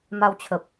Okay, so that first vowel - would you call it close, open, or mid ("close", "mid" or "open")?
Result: open